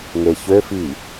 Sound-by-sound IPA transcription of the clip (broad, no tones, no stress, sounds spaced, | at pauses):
ŋ e ç ø f i